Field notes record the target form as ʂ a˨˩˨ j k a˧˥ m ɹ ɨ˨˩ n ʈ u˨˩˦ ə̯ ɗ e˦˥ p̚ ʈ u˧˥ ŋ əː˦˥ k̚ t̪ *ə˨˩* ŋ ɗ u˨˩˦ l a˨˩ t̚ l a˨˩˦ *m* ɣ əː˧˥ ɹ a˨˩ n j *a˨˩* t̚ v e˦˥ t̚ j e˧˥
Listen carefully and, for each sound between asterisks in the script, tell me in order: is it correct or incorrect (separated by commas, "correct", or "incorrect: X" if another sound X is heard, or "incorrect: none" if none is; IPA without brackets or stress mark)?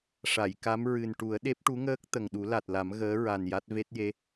correct, correct, incorrect: a˦˥